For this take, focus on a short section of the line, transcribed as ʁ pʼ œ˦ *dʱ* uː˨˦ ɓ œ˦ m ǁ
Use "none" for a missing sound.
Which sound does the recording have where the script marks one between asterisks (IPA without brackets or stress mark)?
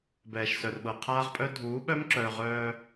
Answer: dʱ